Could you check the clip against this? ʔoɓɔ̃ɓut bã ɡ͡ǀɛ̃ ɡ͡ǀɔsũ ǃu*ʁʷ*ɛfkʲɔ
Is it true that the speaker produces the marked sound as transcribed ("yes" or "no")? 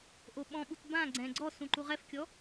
no